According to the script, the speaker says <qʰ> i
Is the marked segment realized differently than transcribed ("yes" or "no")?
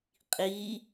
yes